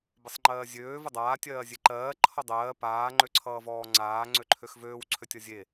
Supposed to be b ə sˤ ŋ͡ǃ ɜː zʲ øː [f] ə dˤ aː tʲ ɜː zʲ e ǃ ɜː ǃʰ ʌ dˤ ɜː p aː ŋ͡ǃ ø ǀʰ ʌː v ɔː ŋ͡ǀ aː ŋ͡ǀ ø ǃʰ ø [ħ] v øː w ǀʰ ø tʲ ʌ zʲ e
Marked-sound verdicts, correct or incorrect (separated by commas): incorrect, incorrect